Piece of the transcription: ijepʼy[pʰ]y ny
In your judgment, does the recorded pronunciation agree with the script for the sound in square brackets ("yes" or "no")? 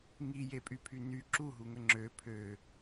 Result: yes